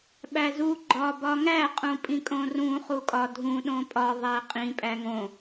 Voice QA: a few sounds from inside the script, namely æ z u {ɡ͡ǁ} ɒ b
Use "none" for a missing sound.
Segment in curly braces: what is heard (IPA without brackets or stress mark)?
ɡ͡ǃ